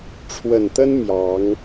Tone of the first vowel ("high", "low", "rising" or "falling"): low